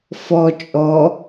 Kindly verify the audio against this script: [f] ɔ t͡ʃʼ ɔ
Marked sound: correct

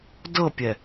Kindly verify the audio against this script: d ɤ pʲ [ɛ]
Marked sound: correct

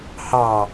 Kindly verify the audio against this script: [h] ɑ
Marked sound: correct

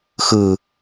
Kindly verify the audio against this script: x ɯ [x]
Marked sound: incorrect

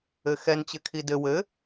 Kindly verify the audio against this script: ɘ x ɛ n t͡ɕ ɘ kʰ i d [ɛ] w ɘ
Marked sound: incorrect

